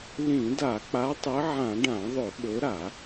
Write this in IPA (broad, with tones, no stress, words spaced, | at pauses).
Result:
lĩ˧˩˧da˧˩˧ k͡pa˨˦tˤɨ˨˦ʕã˧˩˧ ɖã˧˩˧ðˤɵ˧˩˧ɓɵ˨˦ɾa˧˩˧